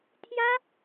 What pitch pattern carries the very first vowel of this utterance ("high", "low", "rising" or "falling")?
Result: high